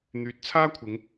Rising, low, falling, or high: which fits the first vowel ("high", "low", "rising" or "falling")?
rising